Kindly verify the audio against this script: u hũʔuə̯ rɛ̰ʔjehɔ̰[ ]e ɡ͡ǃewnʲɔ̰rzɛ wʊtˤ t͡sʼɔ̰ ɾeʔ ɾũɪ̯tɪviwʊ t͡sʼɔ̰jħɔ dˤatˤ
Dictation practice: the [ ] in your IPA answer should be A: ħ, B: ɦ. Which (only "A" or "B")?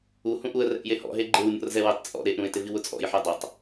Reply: B